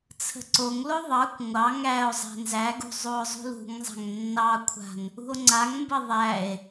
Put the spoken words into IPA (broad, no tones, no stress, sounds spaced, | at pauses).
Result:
t͡sʰ ə̤ ǀ o ŋ l o ðˤ ɑ kʷ ŋʷ ɑ ŋ æ o̯ zˤ æ̤ n z æ ɡ ṳ zˤ u o̯ zˤ ṳ l ṳ ŋ zˤ a̤ ŋ nː ɑ kʷʰ a̤ n | ṳ o̯ ŋ͡ǀ a ŋ m b ə ðˤ æ e̯